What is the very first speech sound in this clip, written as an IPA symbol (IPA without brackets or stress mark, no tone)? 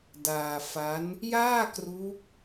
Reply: d